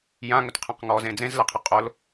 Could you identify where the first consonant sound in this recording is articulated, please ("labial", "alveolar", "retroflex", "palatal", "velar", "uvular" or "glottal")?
palatal